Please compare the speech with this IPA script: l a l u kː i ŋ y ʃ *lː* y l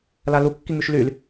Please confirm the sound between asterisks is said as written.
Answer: no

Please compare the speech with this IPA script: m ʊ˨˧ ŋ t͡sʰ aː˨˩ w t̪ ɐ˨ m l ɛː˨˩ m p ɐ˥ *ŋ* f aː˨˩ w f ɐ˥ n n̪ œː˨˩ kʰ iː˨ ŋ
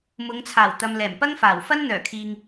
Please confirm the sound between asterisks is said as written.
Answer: yes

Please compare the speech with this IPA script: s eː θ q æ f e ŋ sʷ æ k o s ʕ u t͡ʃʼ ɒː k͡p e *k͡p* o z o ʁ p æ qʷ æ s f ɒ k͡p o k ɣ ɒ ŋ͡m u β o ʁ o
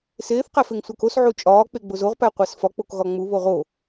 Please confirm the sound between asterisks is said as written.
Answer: no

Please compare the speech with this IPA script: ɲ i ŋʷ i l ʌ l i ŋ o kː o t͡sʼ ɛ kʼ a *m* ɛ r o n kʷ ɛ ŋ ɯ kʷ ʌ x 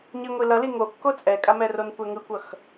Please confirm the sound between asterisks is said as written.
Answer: yes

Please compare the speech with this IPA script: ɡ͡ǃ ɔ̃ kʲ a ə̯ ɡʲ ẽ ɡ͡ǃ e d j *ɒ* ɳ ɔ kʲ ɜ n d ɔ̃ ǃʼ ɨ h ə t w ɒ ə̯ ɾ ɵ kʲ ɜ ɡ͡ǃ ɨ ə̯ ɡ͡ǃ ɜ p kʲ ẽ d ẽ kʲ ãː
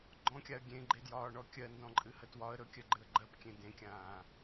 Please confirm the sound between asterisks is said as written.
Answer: no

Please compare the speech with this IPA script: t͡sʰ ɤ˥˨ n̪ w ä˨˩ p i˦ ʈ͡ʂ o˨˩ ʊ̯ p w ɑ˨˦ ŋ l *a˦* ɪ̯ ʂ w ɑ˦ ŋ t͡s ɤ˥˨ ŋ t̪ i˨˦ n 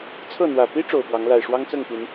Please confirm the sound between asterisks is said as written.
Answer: no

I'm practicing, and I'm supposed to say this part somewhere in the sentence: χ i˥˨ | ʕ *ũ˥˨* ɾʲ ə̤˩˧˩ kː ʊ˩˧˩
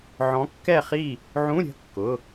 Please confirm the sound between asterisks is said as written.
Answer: no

